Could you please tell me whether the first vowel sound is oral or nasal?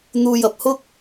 oral